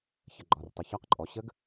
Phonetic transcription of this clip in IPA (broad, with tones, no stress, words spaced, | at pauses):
çə˩ɡ͡ǃɒ˩rtˤə˩ çɒ˨˦qǃʼɔ˩ɕə˦˥ɡ